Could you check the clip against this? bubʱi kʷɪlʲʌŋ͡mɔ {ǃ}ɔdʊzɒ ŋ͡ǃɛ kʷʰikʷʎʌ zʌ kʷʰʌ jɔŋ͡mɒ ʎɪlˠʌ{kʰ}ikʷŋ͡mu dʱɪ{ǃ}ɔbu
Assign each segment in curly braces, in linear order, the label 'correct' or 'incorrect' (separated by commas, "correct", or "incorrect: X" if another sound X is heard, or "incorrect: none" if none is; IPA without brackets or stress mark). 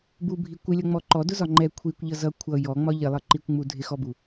correct, incorrect: ǃ, incorrect: x